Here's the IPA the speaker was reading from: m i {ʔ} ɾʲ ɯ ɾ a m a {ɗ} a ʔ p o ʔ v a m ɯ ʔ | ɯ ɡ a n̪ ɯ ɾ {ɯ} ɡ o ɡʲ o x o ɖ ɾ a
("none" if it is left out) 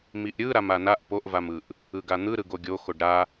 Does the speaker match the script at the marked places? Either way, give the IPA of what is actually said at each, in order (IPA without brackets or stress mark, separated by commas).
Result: ʔ, n, ɯ